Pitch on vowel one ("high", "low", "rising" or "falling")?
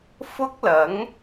high